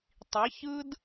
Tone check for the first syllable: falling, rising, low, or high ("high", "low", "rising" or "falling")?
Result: rising